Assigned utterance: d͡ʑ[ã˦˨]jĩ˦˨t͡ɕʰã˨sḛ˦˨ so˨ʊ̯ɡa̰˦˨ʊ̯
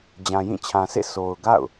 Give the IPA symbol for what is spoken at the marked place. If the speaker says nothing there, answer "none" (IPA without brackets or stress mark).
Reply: ã˨